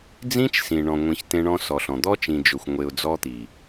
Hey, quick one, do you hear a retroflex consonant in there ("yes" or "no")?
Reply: yes